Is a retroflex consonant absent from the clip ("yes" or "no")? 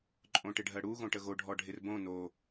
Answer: no